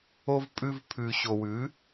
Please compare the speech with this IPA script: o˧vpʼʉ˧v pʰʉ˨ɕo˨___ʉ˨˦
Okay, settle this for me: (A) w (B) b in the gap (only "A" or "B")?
A